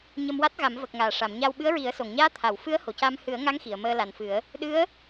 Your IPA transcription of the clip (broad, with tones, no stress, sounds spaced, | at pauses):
ɲ ə˧ m w a˦˥ t̚ ɣ a˨˩˦ m v ə˨˩ k̚ ŋ aː˨˩˨ ʂ a˨˩˨ m ɲ a˧ w ɓ ɨ˧˥ ə̯ ɹ i˨˩˦ ə̯ s o˨˩˨ ŋ ɲ aː˧˥ t̪ʰ a˨˩˨ w f ɨ˧˥ ə̯ h o˨˩˨ c a˧ m h ɨ˨˩˦ ə̯ ŋ a˧˥ ŋ x i˨˩˨ ə̯ m əː˧ l a˨˩ n f ɨ˨˩˦ ə̯ | ɗ ɨ˧˥ ə̯